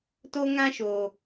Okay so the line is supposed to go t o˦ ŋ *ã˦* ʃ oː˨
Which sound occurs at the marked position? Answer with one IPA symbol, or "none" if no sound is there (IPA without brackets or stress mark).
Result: ã˦